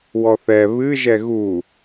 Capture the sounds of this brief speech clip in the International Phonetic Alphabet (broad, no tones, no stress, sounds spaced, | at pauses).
w ɔ θ ɛ β ɨ ʒ ɛ ɣ u